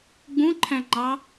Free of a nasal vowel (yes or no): no